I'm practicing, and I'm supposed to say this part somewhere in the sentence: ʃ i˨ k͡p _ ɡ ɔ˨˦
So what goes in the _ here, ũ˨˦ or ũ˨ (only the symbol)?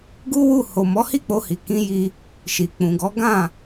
ũ˨